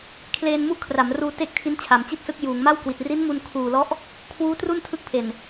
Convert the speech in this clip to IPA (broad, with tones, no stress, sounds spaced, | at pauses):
kʰ l eː˧ n m u˦˥ ʔ kʰ r a˩˦ m r uː˧ t e˥˩ k̚ tʰ i˦˥ n t͡ɕʰ a˩˦ m t͡ɕ i˥˩ t̚ s ɯ˦˥ k̚ j uː˩˦ ŋ m a˥˩ w k w i˨˩ t̚ r i˦˥ n m u˧ n kʰ uː˨˩ l ɔ˦˥ ʔ | kʰ w uː˦˥ t r u˥˩ n tʰ ɯ˦˥ k̚ pʰ e˨˩ n